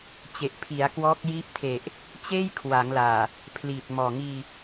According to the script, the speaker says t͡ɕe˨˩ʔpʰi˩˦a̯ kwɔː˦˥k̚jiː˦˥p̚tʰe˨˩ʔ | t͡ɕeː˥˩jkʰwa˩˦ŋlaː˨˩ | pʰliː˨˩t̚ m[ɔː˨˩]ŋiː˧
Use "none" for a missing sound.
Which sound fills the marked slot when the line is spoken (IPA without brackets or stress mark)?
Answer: ɔː˨˩